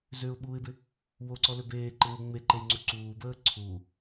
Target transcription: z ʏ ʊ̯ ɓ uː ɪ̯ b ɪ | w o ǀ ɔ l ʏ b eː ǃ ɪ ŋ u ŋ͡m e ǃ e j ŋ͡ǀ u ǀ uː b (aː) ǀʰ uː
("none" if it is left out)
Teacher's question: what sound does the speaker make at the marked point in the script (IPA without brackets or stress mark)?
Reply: əː